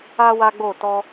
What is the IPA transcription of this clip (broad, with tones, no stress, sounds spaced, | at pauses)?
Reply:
a˦ w a˦ ɡ͡b o˦˨ t ɔ˧